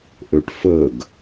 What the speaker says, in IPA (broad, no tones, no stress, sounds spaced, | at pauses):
ʔ ø ʈ f ə ɡ